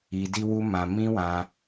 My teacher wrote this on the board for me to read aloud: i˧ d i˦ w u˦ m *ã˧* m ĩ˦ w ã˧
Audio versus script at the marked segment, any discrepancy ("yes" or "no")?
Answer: no